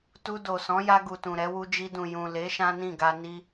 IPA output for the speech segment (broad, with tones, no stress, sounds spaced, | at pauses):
t u˧ d o˨ s ɔ̃˨˦ j a˧ ɡ u˨ t ũ˨ ɾ ɛ˨˦ w u˧ d͡ʒ i˧ d ũ˨ j ũ˨ l e˨˦ ʃ ã˦ n ĩ˦˨ ɡ a˧ n i˦